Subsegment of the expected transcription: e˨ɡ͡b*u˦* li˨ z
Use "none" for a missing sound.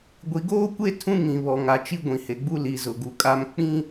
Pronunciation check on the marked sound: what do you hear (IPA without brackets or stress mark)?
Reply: u˦